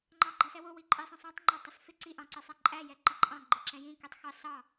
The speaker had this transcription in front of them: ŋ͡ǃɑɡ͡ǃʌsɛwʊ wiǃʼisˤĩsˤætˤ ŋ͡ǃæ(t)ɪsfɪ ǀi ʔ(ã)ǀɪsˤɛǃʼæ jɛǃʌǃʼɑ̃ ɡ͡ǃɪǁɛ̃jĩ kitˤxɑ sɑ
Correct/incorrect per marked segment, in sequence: incorrect, incorrect

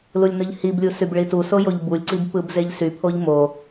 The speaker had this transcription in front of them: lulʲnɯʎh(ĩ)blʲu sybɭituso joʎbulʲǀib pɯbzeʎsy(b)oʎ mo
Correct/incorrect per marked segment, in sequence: incorrect, incorrect

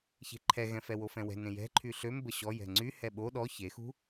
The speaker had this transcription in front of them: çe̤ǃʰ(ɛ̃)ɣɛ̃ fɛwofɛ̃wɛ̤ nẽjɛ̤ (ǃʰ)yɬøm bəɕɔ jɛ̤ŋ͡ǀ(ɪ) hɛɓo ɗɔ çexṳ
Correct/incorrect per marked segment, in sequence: incorrect, correct, incorrect

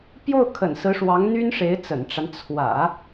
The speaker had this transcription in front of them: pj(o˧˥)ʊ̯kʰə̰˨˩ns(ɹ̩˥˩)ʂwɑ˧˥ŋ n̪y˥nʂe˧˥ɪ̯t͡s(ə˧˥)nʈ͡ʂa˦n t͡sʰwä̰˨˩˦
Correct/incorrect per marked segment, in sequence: incorrect, incorrect, incorrect

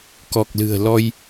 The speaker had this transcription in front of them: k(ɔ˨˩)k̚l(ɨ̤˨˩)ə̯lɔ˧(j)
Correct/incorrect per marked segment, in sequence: correct, correct, correct

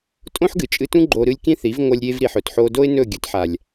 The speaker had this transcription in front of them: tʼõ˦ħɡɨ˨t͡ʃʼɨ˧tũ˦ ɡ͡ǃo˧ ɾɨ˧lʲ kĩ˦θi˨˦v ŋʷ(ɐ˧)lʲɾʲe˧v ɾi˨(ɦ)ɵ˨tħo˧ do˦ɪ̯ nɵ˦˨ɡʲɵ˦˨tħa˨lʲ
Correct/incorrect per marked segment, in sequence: correct, incorrect

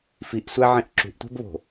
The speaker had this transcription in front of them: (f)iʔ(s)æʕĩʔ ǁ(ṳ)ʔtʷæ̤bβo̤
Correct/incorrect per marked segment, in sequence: correct, incorrect, correct

